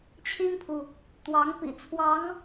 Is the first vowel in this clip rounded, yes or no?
no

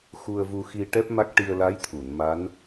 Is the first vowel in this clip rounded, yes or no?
yes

